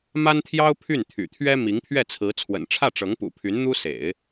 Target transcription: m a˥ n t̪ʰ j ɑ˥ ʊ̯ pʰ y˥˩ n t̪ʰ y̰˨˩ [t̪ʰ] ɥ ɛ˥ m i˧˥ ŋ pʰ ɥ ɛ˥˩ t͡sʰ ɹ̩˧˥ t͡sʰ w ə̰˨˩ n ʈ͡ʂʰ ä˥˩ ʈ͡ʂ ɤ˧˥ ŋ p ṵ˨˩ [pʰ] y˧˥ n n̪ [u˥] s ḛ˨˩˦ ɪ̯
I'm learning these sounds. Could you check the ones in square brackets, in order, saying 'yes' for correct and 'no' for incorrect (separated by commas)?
yes, yes, yes